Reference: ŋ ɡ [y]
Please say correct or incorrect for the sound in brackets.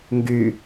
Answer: correct